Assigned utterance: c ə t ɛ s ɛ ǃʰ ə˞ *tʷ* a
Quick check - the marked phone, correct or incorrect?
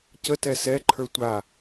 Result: correct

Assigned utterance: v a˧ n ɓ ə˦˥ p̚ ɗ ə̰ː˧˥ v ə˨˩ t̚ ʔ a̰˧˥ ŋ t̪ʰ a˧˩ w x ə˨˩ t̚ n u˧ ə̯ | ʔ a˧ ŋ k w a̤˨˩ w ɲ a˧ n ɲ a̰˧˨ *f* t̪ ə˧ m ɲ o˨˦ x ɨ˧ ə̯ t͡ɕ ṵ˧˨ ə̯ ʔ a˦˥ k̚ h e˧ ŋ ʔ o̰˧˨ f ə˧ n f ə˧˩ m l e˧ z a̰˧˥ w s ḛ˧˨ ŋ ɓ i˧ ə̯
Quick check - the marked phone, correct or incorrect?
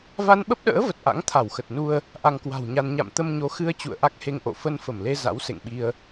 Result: incorrect: m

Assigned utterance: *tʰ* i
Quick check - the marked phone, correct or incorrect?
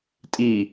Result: incorrect: tʼ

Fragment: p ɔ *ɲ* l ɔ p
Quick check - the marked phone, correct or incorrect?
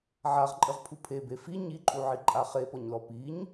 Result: correct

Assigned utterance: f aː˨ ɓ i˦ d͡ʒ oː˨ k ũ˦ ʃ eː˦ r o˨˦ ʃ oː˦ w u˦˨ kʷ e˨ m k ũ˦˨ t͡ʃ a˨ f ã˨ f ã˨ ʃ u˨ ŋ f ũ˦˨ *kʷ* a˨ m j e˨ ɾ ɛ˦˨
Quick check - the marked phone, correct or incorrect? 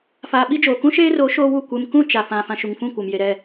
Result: correct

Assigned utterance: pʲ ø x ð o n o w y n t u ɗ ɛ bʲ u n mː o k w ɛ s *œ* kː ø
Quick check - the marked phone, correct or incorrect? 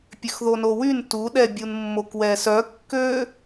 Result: correct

